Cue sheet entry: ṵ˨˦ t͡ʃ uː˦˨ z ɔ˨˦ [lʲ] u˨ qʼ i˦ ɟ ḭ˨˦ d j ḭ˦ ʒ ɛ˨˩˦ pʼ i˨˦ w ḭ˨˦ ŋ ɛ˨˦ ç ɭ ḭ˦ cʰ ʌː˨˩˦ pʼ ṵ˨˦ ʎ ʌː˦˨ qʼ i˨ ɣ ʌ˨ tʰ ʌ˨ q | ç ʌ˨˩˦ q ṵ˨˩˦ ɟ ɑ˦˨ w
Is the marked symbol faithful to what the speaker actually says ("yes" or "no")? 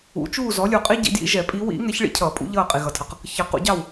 yes